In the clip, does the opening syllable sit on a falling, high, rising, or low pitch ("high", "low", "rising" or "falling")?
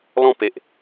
falling